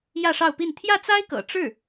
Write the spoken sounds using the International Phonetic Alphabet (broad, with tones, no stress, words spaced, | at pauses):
jä˥˧ʂɑ˥˧ʊ̯pi˥˧n t̪ʰjä˥˩t͡sa˥ɪ̯kɤ̰˨˩ ʈ͡ʂɻ̩˥˩